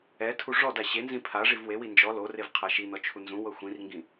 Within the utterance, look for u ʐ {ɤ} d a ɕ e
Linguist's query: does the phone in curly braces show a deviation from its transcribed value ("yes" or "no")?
yes